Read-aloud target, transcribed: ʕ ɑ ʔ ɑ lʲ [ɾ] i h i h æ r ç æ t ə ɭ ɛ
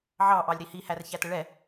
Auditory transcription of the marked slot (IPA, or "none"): ɾ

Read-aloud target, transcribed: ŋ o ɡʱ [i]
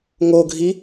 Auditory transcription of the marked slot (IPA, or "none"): i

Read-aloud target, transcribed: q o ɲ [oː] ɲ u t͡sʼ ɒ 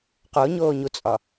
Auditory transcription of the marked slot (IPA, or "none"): oː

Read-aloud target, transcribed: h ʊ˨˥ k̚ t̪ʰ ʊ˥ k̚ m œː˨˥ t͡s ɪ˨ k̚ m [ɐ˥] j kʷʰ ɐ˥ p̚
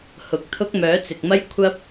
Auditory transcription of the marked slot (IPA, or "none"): ɐ˥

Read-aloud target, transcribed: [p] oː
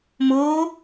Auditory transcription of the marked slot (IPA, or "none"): m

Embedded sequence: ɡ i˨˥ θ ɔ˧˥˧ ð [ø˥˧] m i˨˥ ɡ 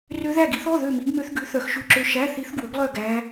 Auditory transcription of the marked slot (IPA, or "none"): ø˥˧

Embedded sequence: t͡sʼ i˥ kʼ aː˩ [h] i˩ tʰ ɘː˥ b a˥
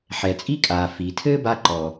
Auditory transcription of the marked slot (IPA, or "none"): f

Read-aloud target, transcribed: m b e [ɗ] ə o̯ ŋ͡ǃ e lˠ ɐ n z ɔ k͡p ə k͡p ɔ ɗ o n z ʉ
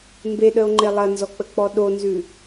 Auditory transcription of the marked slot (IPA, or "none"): ɗ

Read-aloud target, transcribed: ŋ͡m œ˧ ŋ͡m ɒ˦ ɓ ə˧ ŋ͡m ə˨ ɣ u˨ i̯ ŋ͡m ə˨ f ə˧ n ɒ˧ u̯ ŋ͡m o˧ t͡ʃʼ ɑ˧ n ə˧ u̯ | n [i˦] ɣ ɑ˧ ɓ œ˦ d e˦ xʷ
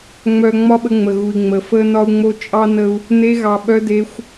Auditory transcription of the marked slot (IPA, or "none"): e˦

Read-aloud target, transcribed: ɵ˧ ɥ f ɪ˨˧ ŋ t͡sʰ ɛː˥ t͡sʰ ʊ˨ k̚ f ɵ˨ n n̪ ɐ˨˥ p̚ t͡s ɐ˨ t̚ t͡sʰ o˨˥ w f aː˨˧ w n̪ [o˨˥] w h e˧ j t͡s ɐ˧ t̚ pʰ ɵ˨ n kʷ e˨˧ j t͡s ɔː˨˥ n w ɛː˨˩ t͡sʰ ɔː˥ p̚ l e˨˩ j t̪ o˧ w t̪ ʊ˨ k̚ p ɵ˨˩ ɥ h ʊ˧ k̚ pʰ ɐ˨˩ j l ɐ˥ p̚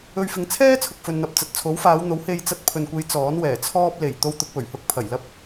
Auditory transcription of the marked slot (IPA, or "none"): o˨˥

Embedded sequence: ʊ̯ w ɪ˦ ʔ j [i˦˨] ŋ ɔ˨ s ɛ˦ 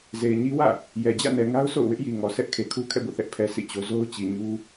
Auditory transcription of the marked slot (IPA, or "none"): i˨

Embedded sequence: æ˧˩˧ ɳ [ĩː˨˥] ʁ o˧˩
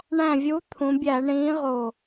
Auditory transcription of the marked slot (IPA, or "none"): ĩː˨˥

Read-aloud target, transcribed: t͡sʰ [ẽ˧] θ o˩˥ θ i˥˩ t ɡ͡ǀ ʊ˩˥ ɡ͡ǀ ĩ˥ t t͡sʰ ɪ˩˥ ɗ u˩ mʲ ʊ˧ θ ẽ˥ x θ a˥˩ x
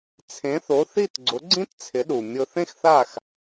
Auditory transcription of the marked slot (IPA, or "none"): ẽ˩˥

